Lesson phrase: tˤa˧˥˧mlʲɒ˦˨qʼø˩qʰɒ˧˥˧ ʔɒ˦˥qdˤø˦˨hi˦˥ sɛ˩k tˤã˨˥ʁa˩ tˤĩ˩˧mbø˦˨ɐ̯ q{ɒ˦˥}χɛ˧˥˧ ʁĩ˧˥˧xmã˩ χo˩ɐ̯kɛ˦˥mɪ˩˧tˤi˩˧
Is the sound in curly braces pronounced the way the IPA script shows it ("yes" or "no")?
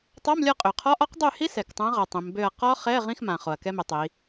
yes